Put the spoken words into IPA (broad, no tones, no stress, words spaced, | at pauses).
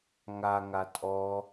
ŋaŋa tʼɔ